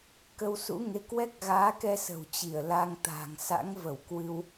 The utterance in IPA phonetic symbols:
kə˧wsṵ˧˥ŋe˨˦ kwɛ˦˥k̚ɣaː˨˦kɛ˧ sə̤˨˩wt͡ɕi˧˩ə̯la˧ŋ t̪a̤˨˩ŋ sa̰˧˥ŋvə˧˩w kwɨ˧w

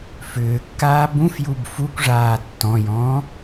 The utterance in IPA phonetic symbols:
fʏːkːaː bũfjub fukʷʐaː tːɔ̃jɔ̃ː

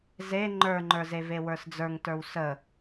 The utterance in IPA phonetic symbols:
ze ŋ͡ǃə˞ŋ͡ǃə˞ze vewə˞sd͡zə˞ŋtə˞w sə

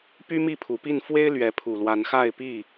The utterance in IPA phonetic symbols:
py˦ mi˥˨pʰu˨˩pi˥˨n fwe˦ɪ̯lɥɛ˨˦ pʰu˨˩lwa˨˦nxa˥˨ɪ̯pi˥˨

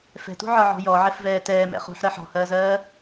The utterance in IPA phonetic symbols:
fɛ̤tṳʕɒʕɔ̤ jɔʕɛfvɛː tɛːmɛ̰ χṳħɾɜ ħɔ̤hɜːzɜː

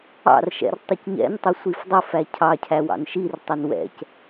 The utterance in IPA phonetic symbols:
ɑ̰rʃɛ̰r tˤʊcɲɛ̰ntˤɪ sʷifdˤʊfæ cʰɑcʰæ wɑ̰nʃirtˤʊn wɛ̰c

